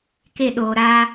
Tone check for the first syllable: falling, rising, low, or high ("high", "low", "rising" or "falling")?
falling